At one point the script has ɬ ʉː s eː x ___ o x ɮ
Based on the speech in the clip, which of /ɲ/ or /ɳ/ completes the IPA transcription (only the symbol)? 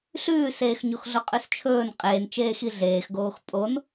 ɲ